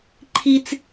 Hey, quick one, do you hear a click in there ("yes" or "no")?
yes